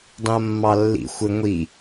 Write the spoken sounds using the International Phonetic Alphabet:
dˤ ĩ ɐ̯ mː ɑ lː ḭ xʷ ɘ ŋʷ i

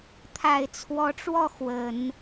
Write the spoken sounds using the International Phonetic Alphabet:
t̪ʰ a˨˩ ɪ̯ t͡sʰ w ɔ˧˥ ʈ͡ʂ w ɔ˥˩ x w ə˨˩˦ n

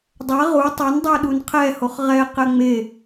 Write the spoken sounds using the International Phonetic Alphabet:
dˤ ɛ ʁ u tˤ ø n dˤ ø ɗ u n qʰ ɛ h o χ ʁ ɛ q ɛ ŋ͡m e

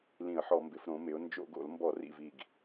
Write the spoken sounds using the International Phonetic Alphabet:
l ĩ˧˩˧ ə̯ ħ ɔ˧˩˧ m b ɪ˩˧ f ɾ õ˩˧ m ɪ˩˧ ʊ̯ n d͡ʒ o̰˧˩˧ ɡ o̰˧˩˧ l m b ɔ˧˩˧ r ḭ˨˩ v i˨˩ ɡ

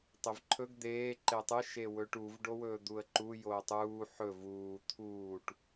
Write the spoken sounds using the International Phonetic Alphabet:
tˤ e v ǃʰ ɵ ɡ d̪ eː ǃ e tˤ ɨ ʃ e w ɵː ʈ u v ɖ o w ɵː d̪ u ə̯ ǃ u j oː tˤ uː ħ ɵ v uː t̪ʰ uː ʈ

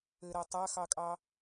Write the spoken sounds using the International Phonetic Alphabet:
ɘ ɾ ɐ tˤ a x ɑ kʼ ɑ

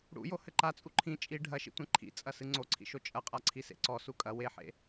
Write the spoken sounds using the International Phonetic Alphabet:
ɽ ṵ j o h ɘ ǃ a t͡sʼ u ǃʰ ĩ t͡ʃʼ i ɖʱ ɐ ʃ ḭ tʷ ɛ̃ ǃʰ ḭ t͡sʼ ɐ s ɨ ŋ͡ǀ o ǀʰ ḭ ʃ o t͡ʃʼ ɐ qʼ a ǀʰ i s ḛ ǀ ɔ s u kʼ ɐ w e ħ ḛ

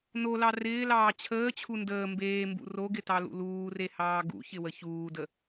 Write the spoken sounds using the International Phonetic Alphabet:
n o l ɑ r ɪː l ɑː t͡ɕʰ əː t͡ɕʰ u n d əː m b eː m b ṵ r o ɡ ɪ t ɑ l ṵ l uː r e h ɑː ɡ ṵ ç ɪ w ə ç uː d ə

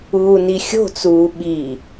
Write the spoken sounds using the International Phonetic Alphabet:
uː n i xʲ o̤ t͡s uː ɓ i

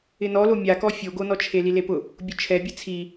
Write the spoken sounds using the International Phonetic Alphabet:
ɪ n ɔ l o mʲ a k ɔ fʲ o ɡ o n ɔ t͡ʃʰ e l i l e p ʊ | bʲ ʊ t͡ʃʰ ɛ bʲ ɛ t͡sʰ i

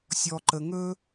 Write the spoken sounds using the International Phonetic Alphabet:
sʲ ɔ˨ ǃ ə˨ ŋ ɵ˥

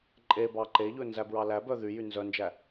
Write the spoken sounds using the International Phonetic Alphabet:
ǃʼ e b ɑ ǃ e ʎ ɵ n z æ b ɹ ɑ l æ b œ ð y j y n z œ n d͡ʒ æ

